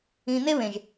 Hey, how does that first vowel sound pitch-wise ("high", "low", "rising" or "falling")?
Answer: low